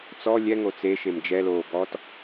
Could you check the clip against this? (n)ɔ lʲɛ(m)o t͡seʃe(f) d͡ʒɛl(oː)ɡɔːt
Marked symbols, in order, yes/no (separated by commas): no, no, no, yes